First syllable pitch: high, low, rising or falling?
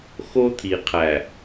high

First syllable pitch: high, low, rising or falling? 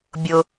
high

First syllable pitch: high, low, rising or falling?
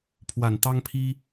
low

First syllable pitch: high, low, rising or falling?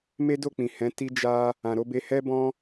high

